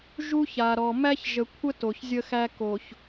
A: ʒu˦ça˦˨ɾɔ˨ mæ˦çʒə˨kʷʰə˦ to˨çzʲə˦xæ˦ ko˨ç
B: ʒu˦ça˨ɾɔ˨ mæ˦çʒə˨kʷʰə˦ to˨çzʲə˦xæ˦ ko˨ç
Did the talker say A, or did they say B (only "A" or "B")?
B